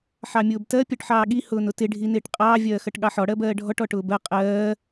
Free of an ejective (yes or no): no